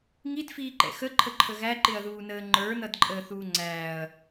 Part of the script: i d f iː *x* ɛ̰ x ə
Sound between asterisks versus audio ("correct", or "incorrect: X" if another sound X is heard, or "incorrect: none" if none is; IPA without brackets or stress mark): incorrect: ǃ